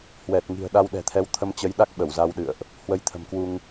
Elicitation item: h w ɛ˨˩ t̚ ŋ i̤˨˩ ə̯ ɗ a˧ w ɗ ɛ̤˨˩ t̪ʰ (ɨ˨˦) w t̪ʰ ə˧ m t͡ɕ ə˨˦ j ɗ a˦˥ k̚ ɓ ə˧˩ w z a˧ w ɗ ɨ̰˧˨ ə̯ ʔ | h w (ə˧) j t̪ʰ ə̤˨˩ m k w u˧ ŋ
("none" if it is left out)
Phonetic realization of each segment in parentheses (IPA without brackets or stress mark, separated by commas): ɛ˨˦, ə˧